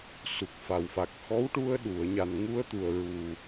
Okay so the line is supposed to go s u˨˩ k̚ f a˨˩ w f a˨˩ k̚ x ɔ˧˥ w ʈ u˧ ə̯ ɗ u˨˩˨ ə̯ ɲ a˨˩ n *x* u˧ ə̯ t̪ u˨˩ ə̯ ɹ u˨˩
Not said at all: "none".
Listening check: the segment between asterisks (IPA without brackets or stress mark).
ŋ